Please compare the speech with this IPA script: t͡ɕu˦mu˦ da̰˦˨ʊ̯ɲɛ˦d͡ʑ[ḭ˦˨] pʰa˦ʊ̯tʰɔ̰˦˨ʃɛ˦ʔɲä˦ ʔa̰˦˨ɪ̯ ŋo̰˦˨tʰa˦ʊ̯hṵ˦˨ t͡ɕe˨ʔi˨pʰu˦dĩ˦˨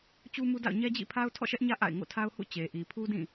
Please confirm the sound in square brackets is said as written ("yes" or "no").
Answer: yes